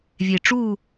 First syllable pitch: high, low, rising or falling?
low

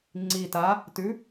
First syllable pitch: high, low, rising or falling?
low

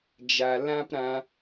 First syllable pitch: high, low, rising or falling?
low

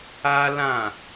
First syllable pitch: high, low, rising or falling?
high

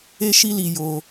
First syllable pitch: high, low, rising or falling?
high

